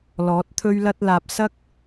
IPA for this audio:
lɔː˨˥t̚t̪ʰɵ˥ɥlɐ˥t̚laː˧p̚ sɐ˥k̚

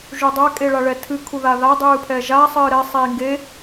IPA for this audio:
ʒudˤa kʼeɭaɭɛtʰɨ kʰuðaða dˤɨːpʰɛʒa sˤɨːɾɛ sˤiːŋɡe

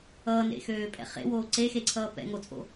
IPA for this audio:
ʌːnḛxøːpʼɛ̰ χḛwoː ǀexeǀʰʌː pɛ̰ŋot͡sʼo̰

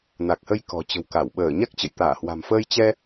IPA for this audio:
na˨˩k̚hə˧j kɔ̤˨˩t͡ɕə̤˨˩wka˧˩w ɓəː˧˩ɲa˦˥k̚t͡ɕə̰˧˨j t̪aː˧˩hwa̤˨˩mfəː˧j t͡ɕɛ˧

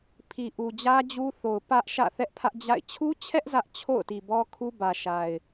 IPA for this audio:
pʰi˨ʔu˨ d͡ʑä˦d͡ʑu˦ θo˨ʊ̯ pä˦ʔʃä̰˦˨ θɛ˦ʔpʰä˦ʔd͡ʑa̰˦˨ɪ̯ t͡ɕʰu˦t͡ɕʰɛ˦ʔ zä˦ʔ t͡ɕʰo̰˦˨ʊ̯ti˨bɔ˦kʰu˦ bä˨ʃa˨ɪ̯

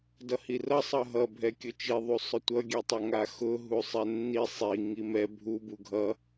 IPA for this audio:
dʌhirʌ sˤʌɦʌ bʱɛkʲʊt͡ʃi ðˤusˤʊtʷʌ ɡʲɛtˤʌŋaxʊ ɦusˤɛnːi sˤi ŋimɛ bʱu buɡʱʌ

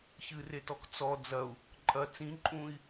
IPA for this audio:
çɨretɔk t͡sɔ d͡zɐu̯ | ǃʼɐ t͡sĩ ǃʼũi̯

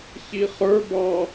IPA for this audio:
çiχə˞ bɑ

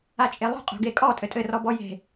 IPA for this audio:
at͡ʃʼelˠo̤ qʼo̤ɡekʼɔ tʼɘtʼɘ rɔbɔje̤

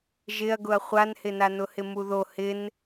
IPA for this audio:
ʒɪɐ̯ɡʊɐ̯ χʷanhɪna nʊhɪmuðo hɪn

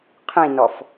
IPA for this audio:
qʰĩnɔf

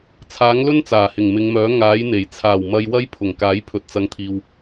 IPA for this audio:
t͡sʰaː˨˥ŋlɵ˥nt͡saː˨˩hɪ˨˩ŋ mɪ˨˧ŋmœː˨˥ ŋaː˨˥jn̪e˨˩j t͡sʰaː˨˩wmɐ˨j wɐ˥j pʰʊ˨˩ŋkaː˨˥j pʰɵ˨t̚t͡sɐ˨ŋt̪ʰiː˨w

